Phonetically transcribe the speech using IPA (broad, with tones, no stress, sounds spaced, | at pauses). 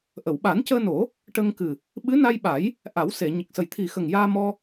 ʔ ə˨˩˨ w ɓ a˨˩˦ n c əː˧ n o˨˩˦ | ʈ ə˧ ŋ k ɨ˨˩ | ɓ ɨ˧˥ n a˧ j ɓ a˨˩˦ j | ʔ a˨˩˦ w s e˨˩˨ ɲ ə˨˩ k̚ s ə˨˩ j t̪ʰ i˨˩ x ə˨˩ ŋ j aː˧ m ɔ˧